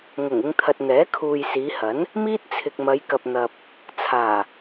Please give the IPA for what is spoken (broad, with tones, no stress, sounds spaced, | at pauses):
ŋ ʊ˨˩ ŋ ɪ˧ ŋ t̪ʰ ɐ˨ t̚ n̪ ɛː˨˥ kʰ uː˨ j s iː˨˧ h ɐ˨˥ n | m iː˥ t̚ t͡sʰ ɪ˨ k̚ m ɐ˨˧ j k ɐ˨ p̚ n̪ ɐ˨ p̚ | t͡sʰ aː˨˩